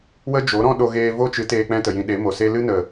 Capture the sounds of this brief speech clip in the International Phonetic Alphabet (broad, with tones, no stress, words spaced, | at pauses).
wə˦d͡ʒo˨˦ɾɔ̃˦ ɗo˧ɣeː˧vo˦t͡ʃɨ˨˦ teː˧k͡pɛ̃˦tə˨jĩ˧ ɗe˨˦mo˨se˦ lɨ˦nə˨